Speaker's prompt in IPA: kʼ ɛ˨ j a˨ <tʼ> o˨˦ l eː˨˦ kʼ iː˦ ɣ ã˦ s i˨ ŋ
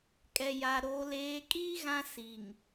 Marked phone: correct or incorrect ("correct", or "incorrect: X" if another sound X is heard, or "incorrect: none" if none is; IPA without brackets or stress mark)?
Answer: incorrect: ɾ